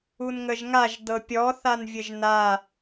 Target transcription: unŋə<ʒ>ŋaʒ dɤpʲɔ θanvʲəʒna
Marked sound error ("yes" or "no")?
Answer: no